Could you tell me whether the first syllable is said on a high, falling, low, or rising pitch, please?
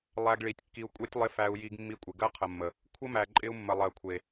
low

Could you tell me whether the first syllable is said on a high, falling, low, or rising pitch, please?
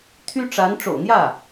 high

